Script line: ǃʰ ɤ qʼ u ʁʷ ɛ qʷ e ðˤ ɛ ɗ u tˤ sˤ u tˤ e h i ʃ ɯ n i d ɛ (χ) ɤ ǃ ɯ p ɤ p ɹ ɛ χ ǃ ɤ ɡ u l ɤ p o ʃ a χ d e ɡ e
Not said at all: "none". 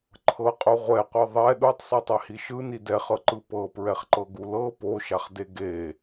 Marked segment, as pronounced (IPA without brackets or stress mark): χ